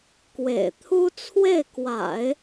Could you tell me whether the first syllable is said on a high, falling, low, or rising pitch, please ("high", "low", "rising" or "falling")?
low